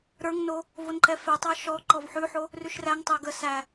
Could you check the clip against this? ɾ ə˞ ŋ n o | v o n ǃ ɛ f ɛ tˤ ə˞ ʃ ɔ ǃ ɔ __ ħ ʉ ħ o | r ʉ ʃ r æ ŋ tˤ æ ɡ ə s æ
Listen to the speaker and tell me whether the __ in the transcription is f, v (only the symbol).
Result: v